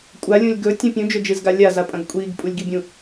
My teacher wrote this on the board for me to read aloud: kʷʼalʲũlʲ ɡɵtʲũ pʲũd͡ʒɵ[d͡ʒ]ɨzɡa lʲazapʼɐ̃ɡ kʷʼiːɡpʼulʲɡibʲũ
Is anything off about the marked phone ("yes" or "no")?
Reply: no